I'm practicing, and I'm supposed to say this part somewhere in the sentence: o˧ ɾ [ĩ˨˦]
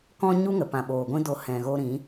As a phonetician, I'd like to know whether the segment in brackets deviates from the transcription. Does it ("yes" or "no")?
no